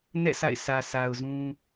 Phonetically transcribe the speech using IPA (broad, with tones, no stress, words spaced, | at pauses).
nɛ̰˦˨ sʰa̰˦˨ɪ̯sʰä˨ sʰa˨ʊ̯zũ˦